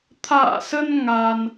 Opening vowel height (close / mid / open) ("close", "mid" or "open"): open